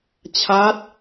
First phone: t͡ɕʰ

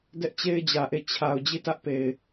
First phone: d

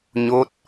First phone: ɲ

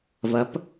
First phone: v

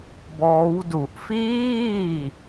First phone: b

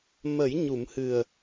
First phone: m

